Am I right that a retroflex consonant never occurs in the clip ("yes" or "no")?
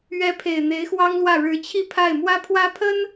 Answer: no